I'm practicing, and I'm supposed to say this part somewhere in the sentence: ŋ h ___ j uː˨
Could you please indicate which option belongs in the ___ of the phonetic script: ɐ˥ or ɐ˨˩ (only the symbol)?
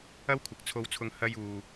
ɐ˥